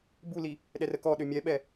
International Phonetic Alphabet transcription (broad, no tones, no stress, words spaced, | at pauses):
buli | ɗɛrəkɔ ɗømʲɛɓɛ